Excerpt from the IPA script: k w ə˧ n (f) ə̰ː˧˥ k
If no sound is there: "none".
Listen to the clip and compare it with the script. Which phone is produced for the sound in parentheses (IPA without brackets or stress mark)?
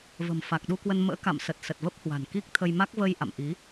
m